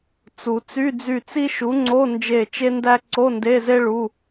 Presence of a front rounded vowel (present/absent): present